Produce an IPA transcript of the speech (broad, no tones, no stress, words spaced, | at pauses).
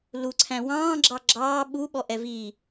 luǀʰæ̃ wɑ̃ːɡ͡ǁɑ ɡ͡ǁɑː ɓuɓɔʔɛ vi